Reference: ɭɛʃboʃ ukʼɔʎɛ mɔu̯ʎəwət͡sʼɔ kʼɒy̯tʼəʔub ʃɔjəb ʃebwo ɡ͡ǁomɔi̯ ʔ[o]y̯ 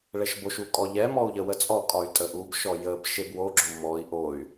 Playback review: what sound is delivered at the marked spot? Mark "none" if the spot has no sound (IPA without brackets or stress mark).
o